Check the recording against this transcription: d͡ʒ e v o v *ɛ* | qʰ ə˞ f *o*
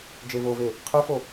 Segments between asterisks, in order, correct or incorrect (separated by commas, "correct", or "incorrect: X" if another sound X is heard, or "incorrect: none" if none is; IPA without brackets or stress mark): incorrect: e, correct